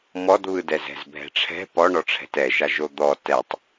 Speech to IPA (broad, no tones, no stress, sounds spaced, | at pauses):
m ɔ d β ɯ d ɛ z ɛ̤ z bʱ ɛ̤ ʈ͡ʂʰ ɛ̤ p ɔ ɳ ɔ ʈ͡ʂʰ ɛ̤ t ɛ ʃ a ʒ o d̪ ɔ t ɛ tˤ